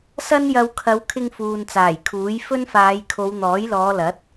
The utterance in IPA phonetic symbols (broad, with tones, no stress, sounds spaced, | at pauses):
s ɐ˥ n j ɐ˧ w kʰ ɐ˨˧ w kʰ ɪ˧ ŋ f uː˨ n t͡s aː˨˩ j kʰ uː˨˥ j f ɵ˥ n f aː˨˧ j kʰ o˨˧ w n̪ ɔː˨˥ j l ɔː˨˧ l ɐ˨˥ t̚